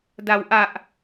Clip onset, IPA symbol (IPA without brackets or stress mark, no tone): d